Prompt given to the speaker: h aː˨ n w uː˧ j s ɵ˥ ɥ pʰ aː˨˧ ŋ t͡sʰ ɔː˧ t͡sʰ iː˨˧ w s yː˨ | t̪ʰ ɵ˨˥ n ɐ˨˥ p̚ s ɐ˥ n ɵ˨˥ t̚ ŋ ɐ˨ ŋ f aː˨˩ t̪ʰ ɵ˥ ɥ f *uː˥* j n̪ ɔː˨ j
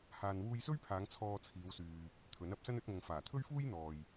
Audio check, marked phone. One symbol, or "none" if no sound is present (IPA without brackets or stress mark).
uː˥